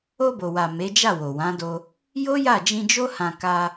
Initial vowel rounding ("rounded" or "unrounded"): rounded